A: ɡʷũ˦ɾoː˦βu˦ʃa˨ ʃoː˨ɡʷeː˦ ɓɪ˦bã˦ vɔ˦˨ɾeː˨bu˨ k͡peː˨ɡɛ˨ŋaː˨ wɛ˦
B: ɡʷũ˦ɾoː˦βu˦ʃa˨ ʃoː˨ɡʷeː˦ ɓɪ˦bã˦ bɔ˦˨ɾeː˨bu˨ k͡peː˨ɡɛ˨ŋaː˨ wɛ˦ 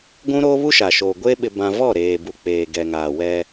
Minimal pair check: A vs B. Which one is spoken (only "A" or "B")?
A